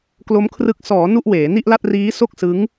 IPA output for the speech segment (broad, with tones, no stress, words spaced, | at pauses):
klo˦˥mkʰrɯ˦˥k̚ sɔː˩˦ nu˥˩ʔweː˩˦ ni˥˩ʔla˥˩t̚ riː˦˥ so˥˩k̚sɯ˦˥ŋ